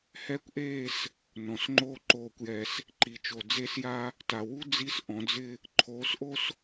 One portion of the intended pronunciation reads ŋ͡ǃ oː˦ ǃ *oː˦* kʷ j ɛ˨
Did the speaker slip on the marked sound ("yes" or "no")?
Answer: yes